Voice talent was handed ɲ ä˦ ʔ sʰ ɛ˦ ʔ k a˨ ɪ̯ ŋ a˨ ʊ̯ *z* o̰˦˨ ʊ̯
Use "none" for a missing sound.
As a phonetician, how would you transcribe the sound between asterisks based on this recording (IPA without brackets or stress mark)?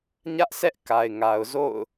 z